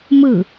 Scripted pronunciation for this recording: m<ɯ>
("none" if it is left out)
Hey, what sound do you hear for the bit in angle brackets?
ɯ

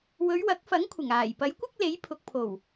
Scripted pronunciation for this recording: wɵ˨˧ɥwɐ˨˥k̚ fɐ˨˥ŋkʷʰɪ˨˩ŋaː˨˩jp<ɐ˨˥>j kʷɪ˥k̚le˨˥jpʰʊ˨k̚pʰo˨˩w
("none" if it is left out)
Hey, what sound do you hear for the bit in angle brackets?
ɐ˨˥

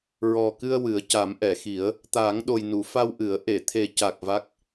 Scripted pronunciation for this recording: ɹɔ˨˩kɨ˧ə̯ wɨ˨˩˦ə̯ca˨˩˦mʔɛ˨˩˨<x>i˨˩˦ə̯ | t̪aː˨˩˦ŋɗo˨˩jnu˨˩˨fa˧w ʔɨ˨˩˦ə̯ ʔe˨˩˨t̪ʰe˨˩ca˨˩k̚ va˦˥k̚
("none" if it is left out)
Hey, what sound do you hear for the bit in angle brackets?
x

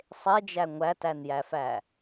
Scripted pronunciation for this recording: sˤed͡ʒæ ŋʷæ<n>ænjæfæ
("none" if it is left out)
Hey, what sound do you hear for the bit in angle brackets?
t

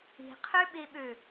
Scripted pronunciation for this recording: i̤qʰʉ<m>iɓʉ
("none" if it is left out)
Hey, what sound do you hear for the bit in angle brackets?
ɓ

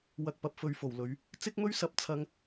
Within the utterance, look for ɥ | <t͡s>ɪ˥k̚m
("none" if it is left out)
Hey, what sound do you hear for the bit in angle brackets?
t͡s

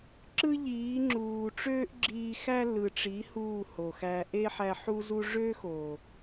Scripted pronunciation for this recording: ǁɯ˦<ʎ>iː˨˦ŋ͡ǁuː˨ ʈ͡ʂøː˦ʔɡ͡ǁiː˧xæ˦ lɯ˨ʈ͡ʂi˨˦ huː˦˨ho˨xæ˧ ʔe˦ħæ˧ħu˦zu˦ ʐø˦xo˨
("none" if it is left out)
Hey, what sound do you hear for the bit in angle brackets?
ʎ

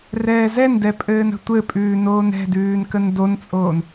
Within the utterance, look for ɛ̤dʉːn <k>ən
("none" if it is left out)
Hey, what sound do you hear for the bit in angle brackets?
k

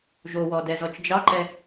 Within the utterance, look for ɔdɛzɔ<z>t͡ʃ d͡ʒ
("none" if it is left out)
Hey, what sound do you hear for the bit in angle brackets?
none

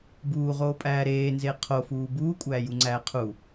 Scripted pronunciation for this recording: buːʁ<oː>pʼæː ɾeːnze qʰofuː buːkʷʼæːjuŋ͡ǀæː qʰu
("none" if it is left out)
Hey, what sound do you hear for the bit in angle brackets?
oː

